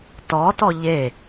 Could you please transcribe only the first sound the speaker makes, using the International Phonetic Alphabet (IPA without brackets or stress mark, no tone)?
t